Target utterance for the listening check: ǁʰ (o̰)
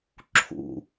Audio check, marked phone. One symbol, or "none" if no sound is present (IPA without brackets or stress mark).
ṵ